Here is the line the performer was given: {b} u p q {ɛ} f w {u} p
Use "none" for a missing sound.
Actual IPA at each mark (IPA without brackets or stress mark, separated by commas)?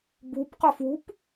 b, ə, u